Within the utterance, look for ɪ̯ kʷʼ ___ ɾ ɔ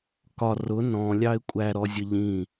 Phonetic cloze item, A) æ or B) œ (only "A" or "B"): A